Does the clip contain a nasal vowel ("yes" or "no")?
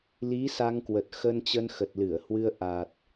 no